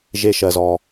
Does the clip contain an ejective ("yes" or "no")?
no